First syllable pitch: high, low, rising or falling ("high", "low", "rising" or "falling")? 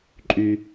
low